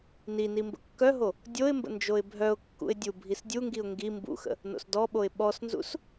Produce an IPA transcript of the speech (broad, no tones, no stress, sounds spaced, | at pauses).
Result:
n i n i m b ə̰ kː œ ɦ o | dʲ o ɪ̯ m b ə̰ n d͡ʒ o ɪ̯ bʱ œ ʊ̯ kː ṵ ɪ̯ dʲ u bʱ i s dʲ u ŋ ɡ i ʊ̯ ŋ ɡ i m b ṵ x ə̰ | n o̰ s d ɔ ɓ o ɪ̯ ɓ ɔ s n z ṵ s